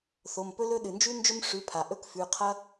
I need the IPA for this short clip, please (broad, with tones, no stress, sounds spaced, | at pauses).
θ o˩˧˩ m p ɵ˦˥ l ɵ˦˥ ɗ ɨ˩ n d͡ʒ ʉ˦˥ n d͡ʒ ɵ˦˥ m ʂ ʉ˩˧˩ pʰ a˩ ʔ ɵ˦˥ k f ʉ˩˧˩ qʰ ɐ˦˥